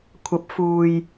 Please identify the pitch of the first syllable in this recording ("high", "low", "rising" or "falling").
rising